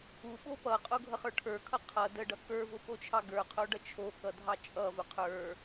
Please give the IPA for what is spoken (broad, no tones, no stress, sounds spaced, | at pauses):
u ɓ o p ʌ qʼ o ɡʱ ʌ χ ə˞ ʈʰ ə˞ kʰ ʌ qʰ ʌ d ə ɖ ʌ k ə˞ v ʊ p o t͡ʃʰ ɑ ɡ ə˞ qʰ o ɖ ʌ t͡ʃʰ o k ʌ dʱ ɑ t͡ʃʼ ʌ v ʊ qʰ ə˞